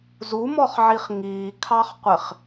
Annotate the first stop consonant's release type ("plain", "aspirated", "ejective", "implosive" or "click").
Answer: aspirated